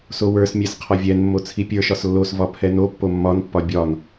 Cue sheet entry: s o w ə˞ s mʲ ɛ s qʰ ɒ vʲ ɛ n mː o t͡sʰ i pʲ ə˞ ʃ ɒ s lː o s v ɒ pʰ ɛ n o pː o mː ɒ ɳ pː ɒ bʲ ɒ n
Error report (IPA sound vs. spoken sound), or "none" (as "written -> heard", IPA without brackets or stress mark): ɳ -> n